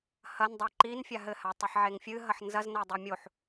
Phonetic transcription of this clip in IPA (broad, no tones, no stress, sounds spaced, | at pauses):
h ɐ n dˤ a ǃ i n fʲ a ɦ ɘ h a tˤ i ħ ʕ e ŋ fʲ ɨ ɦ ɐ ħ n z ɐ z n ɐ dˤ i mʲ o ħ